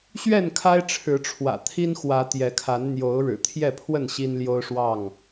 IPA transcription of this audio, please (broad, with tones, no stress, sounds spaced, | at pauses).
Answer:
ɕ ɥ ɛ˥˨ n kʰ a˦ ɪ̯ ʈ͡ʂʰ ɻ̩˨˦ ʈ͡ʂʰ w ä̰˨˩ t̪ʰ i˦ n x w ä˨˦ t̪ j ɛ˨˦ kʰ a˨˦ n n̪ j o˨˦ ʊ̯ ɻ ɻ̩˨˩ t̪ʰ j ɛ˥˨ pʰ w ə˥˨ n ɕ i˦ n l j o˦ ʊ̯ ʂ w ɑ˥˨ ŋ